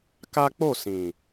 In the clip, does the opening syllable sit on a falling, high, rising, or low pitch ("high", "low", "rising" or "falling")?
high